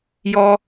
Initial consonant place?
palatal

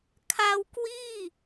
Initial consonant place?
velar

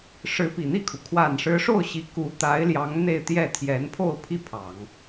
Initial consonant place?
retroflex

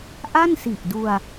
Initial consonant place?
glottal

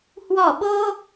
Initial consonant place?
glottal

